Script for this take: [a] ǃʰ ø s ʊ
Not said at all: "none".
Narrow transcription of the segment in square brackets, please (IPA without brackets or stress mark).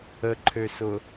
ə